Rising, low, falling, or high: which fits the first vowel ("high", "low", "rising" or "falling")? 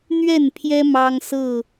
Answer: falling